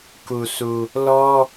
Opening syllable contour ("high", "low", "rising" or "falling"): low